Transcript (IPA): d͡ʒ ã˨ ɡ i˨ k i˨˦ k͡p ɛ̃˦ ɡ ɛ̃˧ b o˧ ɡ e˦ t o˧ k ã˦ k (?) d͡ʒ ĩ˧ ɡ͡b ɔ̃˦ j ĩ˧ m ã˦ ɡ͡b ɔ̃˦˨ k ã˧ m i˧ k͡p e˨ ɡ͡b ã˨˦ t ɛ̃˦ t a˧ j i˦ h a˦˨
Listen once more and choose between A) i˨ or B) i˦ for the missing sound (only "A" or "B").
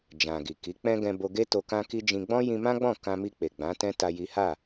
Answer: B